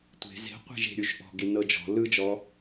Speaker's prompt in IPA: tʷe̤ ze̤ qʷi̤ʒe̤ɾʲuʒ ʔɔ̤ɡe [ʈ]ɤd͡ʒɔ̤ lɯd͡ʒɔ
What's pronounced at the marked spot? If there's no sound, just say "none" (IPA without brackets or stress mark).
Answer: n